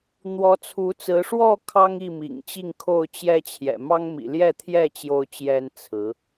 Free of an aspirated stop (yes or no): no